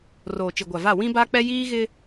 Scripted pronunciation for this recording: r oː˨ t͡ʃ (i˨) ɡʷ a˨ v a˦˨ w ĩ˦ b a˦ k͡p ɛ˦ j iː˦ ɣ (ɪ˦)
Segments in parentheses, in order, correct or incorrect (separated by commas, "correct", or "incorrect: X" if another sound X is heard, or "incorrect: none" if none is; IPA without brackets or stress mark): correct, correct